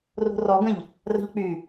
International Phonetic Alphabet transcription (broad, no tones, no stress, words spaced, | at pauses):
ro̤rɔɡə̃ʎ | rə̤ʎk͡py